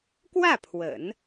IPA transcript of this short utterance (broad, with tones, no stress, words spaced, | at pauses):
kwä˥˩ pʰwə̰˨˩˦n